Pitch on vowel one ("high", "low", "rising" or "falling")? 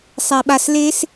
low